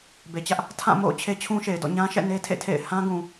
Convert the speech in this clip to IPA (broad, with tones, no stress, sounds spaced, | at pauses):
b e˨ t͡ɕ ä˦ ʔ | tʰ ã˦˨ m o̰˦˨ ʊ̯ t͡ɕʰ e˦ t͡ɕʰ ũ˦ ʃ e˨ ɪ̯ d ɔ̰˦˨ ɲ ã˦ ʃ ɛ̰˦˨ n e˦ tʰ ḛ˦˨ tʰ ḛ˦˨ ɪ̯ h ã˦ ɡ ũ˨